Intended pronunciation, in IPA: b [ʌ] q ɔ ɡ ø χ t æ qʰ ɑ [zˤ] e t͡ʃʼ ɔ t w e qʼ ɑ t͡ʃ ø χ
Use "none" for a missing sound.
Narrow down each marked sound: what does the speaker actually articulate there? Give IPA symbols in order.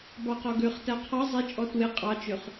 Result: ɑ, zˤ

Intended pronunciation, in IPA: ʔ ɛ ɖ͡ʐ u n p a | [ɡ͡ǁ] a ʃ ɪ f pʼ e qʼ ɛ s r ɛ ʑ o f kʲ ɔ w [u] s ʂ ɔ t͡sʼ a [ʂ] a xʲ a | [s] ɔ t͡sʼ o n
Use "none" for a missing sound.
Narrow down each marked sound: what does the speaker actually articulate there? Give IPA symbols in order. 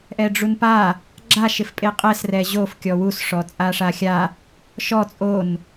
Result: ɡ͡ǁ, u, ʂ, ʃ

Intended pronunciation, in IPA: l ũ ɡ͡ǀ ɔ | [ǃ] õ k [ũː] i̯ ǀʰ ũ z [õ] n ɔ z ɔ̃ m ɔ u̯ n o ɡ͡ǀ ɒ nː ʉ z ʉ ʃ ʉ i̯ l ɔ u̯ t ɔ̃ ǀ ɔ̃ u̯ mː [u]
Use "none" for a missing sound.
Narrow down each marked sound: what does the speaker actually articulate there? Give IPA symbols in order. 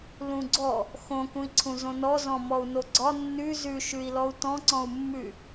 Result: x, ũ, õ, ʉ

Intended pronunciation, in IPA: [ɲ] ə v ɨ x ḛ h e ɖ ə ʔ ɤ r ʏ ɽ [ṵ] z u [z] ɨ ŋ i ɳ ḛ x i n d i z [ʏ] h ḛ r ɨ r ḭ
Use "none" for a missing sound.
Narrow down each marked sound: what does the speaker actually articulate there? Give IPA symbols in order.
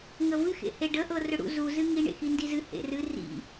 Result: ŋ, ṵ, z, ɨ

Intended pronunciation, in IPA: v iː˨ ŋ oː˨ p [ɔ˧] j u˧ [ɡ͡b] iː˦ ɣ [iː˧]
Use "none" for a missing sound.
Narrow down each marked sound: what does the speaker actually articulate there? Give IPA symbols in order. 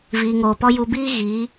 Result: ɔ˧, b, iː˨˦

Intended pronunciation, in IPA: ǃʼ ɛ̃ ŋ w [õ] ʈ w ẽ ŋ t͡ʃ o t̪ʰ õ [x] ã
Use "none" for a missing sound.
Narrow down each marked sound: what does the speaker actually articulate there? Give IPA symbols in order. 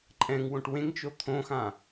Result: õ, x

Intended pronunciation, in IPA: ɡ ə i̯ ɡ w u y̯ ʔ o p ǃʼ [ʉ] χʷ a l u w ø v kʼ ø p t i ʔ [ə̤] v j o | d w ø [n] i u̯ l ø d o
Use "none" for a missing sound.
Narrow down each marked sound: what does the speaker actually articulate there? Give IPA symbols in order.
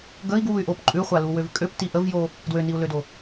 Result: ʉ, ə, n

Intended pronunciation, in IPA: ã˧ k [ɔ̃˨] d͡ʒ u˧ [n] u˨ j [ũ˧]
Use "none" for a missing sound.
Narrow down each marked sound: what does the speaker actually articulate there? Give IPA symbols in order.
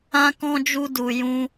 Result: ɔ̃˧, d, ũ˧

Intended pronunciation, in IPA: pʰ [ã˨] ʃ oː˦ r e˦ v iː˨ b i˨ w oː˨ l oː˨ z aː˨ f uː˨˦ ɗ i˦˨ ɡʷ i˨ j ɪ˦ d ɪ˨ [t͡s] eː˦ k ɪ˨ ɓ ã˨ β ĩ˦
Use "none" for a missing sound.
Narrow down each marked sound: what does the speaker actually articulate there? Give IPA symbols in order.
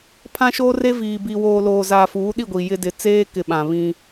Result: ã˦, t͡s

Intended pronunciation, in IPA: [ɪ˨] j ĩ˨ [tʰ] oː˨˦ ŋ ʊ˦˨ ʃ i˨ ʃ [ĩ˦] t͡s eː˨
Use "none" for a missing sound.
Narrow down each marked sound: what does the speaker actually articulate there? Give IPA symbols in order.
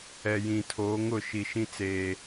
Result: ɛ˨, tʰ, ĩ˦

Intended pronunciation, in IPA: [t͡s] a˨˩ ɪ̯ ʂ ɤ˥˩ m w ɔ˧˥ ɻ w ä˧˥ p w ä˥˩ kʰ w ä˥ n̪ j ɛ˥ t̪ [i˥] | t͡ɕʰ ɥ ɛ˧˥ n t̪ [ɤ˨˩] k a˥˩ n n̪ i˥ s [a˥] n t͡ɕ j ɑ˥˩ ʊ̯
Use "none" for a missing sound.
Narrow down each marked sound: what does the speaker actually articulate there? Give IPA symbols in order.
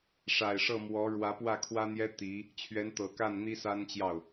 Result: ʂ, i˧˥, ɤ˨˩, a˥

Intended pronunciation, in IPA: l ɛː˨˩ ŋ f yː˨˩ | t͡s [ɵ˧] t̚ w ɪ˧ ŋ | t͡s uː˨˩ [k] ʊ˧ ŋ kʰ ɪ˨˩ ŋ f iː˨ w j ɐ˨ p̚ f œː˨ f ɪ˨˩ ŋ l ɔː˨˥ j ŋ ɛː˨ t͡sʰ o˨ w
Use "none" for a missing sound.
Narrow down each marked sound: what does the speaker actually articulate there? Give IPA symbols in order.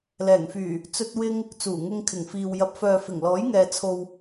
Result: ɵ˧, ŋ

